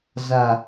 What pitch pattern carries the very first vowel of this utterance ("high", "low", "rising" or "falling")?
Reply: low